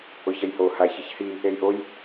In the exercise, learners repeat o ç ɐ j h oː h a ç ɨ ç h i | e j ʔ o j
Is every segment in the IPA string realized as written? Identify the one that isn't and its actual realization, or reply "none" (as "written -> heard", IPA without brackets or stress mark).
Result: none